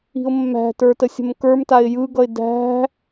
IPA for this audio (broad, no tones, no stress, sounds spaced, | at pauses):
i̤ ʊ̯ mː æ̤ t ə˞ t ə sʲ ə̤ m k ə˞ m t a ɪ̯ j ɯ ɡ ʌ ɪ̯ d æ̤